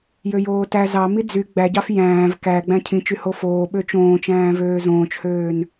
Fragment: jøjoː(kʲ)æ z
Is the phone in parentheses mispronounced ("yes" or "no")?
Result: yes